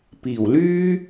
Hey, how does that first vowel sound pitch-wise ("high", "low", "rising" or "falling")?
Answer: low